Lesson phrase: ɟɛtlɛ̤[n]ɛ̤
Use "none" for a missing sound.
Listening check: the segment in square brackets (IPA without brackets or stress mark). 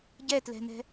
n